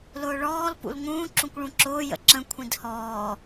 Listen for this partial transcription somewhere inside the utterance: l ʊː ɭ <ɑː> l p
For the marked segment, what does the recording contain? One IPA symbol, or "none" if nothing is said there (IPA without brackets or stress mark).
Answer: ɔː